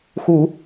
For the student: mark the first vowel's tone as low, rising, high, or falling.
low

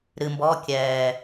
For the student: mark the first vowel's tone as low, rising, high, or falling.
low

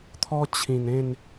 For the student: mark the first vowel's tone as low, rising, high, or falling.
high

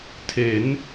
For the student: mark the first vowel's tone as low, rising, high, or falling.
rising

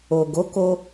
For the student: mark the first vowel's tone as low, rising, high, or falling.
low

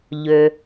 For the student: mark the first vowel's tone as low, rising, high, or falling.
low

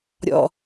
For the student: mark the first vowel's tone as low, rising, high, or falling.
low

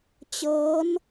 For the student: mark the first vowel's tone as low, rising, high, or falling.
rising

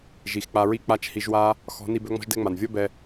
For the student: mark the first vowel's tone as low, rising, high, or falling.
low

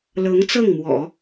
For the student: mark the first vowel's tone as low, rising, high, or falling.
rising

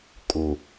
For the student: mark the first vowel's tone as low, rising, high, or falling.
low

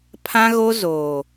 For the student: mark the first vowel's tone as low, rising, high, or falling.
high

